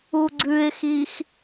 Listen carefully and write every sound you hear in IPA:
uɡ͡ǀʉɪ̯xix

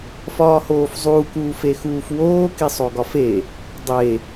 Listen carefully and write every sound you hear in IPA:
fɒːhoːfzˤuːk uːfexuːfwoː kisˤoɡɒfe | dˤe

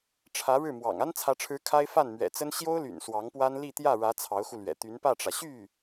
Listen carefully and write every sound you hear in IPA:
ʈ͡ʂʰä˧˥ ɻɻ̩˥˩mwɑ̰˨˩ŋ a˥nt͡sʰä˧˥ʈ͡ʂʰɻ̩˧˥ kʰa˥ɪ̯ fa˥˩nmɥɛ̰˨˩t͡sə˥n ɕjo˥ʊ̯ly̰˨˩n swɑ˧˥ŋpwa˥n li˥˧ t̪jä˥˩ɻä˧˥ t͡sʰɑ˧˥ʊ̯xu˧lɥɛ̰˨˩ t̪y˧˥npä˥˩ʈ͡ʂä˩ ɕy˥˩

